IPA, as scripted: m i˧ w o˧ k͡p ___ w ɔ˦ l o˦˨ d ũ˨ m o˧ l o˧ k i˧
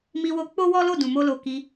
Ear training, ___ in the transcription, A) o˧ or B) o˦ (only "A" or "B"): B